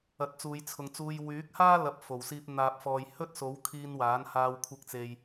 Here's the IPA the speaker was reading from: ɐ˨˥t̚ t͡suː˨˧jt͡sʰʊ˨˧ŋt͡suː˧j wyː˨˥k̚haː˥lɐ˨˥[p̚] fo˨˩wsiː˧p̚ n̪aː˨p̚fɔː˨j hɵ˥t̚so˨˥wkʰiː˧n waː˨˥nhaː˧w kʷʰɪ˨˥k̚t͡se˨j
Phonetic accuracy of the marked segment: correct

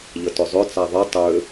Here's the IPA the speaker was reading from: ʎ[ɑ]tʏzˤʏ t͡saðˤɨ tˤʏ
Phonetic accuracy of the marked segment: incorrect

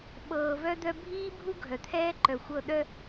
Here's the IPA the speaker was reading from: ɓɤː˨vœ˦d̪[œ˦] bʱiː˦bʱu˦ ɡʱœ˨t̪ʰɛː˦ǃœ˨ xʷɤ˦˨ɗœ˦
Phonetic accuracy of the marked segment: correct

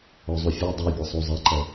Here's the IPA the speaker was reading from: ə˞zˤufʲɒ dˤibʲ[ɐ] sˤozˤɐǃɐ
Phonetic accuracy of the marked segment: correct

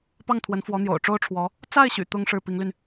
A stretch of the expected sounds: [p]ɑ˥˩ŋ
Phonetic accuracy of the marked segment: correct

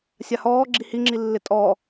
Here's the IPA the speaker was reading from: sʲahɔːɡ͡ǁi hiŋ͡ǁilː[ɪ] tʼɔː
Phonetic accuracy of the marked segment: correct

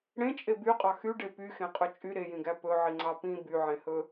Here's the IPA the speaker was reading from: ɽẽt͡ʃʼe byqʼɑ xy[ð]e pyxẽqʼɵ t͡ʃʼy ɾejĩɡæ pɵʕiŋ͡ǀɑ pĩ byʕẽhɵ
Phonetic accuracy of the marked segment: incorrect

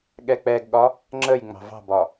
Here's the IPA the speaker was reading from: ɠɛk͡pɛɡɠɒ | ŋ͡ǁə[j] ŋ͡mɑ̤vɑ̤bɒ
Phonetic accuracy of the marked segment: correct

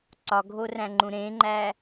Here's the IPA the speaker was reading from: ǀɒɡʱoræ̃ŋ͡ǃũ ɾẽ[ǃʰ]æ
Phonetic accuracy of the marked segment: incorrect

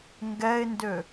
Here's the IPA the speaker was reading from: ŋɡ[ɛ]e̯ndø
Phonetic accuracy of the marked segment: correct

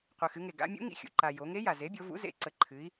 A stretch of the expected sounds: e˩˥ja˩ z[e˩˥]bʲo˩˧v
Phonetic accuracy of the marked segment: correct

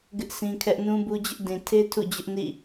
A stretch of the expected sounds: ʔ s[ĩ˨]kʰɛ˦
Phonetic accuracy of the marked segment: incorrect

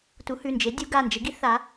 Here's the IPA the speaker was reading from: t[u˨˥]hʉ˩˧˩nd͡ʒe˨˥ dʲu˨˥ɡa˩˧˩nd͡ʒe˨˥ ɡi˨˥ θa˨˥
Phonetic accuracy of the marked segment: correct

